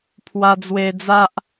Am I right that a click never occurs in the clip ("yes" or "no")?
yes